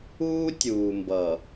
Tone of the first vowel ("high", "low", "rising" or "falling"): high